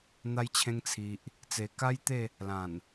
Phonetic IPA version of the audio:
n̪ a˧ j t͡ɕʰ ẽ˧ ŋ t͡sʰ i˨ ʔ | t͡s e˨˩ k a˦ j t̪ e˥˧ | l ã˨˩ n

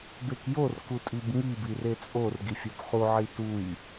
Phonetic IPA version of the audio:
b e k j o r k u tʼ i b ŋ i b i r e t͡sʼ o r ɡ i fʲ o b χ u ʕ i t u j

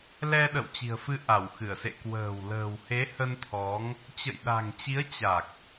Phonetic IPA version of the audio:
l ɛ˧ ɗ ə̰˧˨ w t͡ɕ i̤˨˩ ə̯ f ɨ˧ ʔ a˧˩ w x ɨ˧˩ ə̯ s ḛ˧˨ k w ə̤ː˨˩ w l ə̤ː˨˩ w h e˨˦ h ə˧ n t̪ʰ ɔ˨˦ ŋ | t͡ɕ ə̰˧˨ j ɗ a̤˨˩ ŋ t͡ɕ i˨˦ ə̯ t͡ɕ a˨˩ k̚

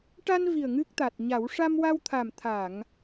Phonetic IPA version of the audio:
ʈ a˧ n v i˨˩ ə̯ ŋ ɨ˦˥ k̚ t̪ a˨˩ t̚ ɲ a˨˩˦ w ʂ a˧ m w a˧ w t̪ʰ a˨˩ m t̪ʰ a˨˩˨ ŋ

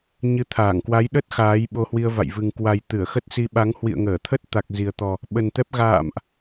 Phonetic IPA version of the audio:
ɲ ɨ˨˦ t̪ʰ aː˧˩ ŋ k w a˨˦ j ɗ ə˦˥ t̚ x aː˨˦ j ɓ o˧ h w i˧ ə̯ v a̰˧˨ j v ɨ˨˩ ŋ k w a˨˩ j t̪ ɨ˧˩ ə̯ x ə˦˥ t̚ s i˧ ɓ a˨˦ ŋ h w ḭ˧˨ ə̯ ŋ əː˧˩ t̪ʰ ə˦˥ t̚ t̪ a˨˩ k̚ z i˨˩ ə̯ t̪ ɔ˨˩ | ɓ ə˨˩ n t̪ ɛ˦˥ p̚ ɣ a̰ː˧˨ m ʔ

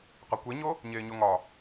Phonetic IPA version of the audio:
q ɒ kʷ e ɲ o | ɲ eː ɲ o ŋ ɒ

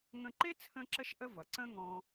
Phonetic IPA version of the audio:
ŋ ə̃˧ ǃ e˥ t͡sʰ ə̃˥ ǁ ə˥ ʃ ʔ ə˥ v ʌ˩ ǀ ə̃˥ ŋ ɔ̃˧

